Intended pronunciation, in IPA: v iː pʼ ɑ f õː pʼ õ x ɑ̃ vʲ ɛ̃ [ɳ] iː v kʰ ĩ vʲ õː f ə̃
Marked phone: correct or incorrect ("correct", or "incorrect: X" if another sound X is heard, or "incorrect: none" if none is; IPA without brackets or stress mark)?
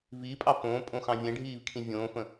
incorrect: ɖʱ